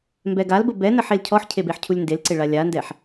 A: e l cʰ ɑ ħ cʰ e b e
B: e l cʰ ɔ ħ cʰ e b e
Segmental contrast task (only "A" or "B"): B